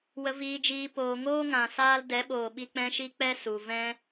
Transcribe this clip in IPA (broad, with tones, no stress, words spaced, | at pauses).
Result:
wə˨viː˨d͡ʒiː˨ poː˨ŋoː˦ŋã˨ saː˧l dɛ˨˦ɓoː˨ɓi˧ k͡pɛ̃˦ʃi˦ k͡pɛ˦su˨ vɛ̃˦